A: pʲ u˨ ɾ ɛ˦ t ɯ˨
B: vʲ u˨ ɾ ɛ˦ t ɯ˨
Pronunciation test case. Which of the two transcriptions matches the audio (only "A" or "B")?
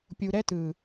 A